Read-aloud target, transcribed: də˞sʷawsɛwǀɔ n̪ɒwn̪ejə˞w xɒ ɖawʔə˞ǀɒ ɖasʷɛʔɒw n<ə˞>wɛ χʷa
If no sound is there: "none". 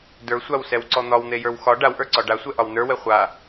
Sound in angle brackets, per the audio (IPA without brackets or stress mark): ə˞